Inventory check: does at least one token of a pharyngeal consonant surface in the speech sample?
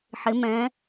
yes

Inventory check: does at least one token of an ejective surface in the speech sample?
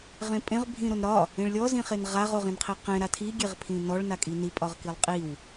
yes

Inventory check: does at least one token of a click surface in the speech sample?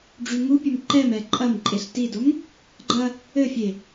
yes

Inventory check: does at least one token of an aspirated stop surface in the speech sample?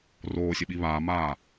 no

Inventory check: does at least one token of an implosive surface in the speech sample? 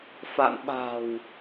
yes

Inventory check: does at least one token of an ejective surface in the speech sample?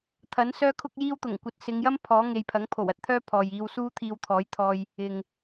no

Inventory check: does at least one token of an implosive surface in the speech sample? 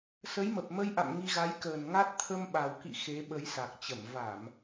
yes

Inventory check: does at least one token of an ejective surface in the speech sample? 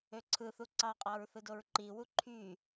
yes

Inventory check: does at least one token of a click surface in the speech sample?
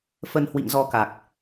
no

